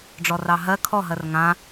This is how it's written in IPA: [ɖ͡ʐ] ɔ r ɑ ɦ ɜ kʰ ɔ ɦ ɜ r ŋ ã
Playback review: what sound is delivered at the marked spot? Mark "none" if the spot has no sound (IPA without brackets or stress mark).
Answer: ɖ͡ʐ